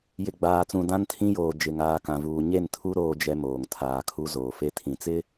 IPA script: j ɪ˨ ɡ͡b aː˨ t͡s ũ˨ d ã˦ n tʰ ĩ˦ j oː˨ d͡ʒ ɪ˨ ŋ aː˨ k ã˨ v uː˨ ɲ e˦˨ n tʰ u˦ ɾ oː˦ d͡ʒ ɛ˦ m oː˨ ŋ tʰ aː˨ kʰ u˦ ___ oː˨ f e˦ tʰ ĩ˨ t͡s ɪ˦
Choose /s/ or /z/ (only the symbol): z